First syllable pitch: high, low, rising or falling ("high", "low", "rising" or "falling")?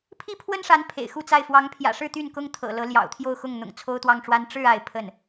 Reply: high